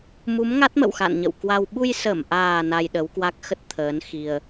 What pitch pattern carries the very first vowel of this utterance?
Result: rising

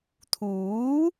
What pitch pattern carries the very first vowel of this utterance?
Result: rising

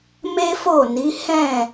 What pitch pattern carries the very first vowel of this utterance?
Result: high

